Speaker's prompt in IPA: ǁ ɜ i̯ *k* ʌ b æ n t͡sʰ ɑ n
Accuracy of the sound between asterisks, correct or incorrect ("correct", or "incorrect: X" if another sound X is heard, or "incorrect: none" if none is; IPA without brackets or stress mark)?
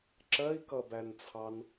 correct